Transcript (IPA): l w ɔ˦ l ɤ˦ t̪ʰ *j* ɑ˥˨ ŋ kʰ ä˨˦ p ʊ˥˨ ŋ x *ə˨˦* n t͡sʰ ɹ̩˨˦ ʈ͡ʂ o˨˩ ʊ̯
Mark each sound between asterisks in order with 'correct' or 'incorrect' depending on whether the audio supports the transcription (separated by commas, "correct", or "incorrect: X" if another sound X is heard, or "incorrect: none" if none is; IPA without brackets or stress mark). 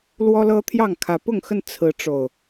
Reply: correct, incorrect: ə˥˨